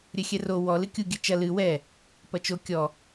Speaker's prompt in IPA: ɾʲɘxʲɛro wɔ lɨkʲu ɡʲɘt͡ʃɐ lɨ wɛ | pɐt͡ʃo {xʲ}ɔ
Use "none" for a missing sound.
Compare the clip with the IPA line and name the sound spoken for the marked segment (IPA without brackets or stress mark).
kʲ